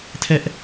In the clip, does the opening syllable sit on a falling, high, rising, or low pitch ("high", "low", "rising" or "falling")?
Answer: high